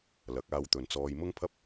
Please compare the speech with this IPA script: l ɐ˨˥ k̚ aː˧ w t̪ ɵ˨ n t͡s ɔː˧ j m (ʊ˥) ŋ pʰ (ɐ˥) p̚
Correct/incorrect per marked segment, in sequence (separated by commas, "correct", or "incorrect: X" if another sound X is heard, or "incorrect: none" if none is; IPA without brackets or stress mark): correct, correct